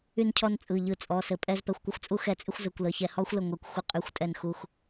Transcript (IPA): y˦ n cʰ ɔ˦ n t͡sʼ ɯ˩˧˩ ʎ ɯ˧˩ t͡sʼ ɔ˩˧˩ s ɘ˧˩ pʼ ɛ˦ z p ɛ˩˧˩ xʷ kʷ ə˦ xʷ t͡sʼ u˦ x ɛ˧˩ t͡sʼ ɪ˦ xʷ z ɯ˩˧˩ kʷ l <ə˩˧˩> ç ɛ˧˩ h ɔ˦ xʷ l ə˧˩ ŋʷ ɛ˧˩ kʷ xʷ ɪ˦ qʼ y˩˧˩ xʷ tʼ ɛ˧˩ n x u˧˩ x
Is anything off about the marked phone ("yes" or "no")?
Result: no